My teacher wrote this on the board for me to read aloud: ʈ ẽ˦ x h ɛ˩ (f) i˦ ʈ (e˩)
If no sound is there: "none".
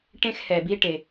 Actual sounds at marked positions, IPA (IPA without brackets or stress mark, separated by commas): b, e˩